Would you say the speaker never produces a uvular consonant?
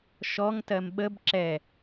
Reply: yes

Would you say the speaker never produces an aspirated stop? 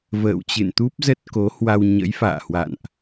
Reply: yes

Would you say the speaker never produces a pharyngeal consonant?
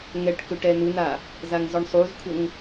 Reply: yes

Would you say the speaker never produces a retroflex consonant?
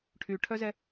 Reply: no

